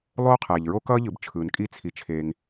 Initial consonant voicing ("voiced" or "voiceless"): voiced